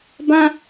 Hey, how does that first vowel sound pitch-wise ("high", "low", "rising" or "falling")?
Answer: high